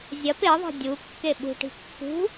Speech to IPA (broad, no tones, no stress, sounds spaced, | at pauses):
zʲ ɐ p e ðˤ e̤ dʲ u kː e ɓ ṳ ʈ i̤ kː ṳ